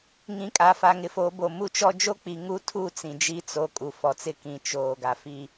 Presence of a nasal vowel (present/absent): present